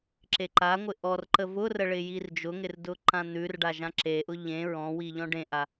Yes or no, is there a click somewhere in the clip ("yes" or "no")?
yes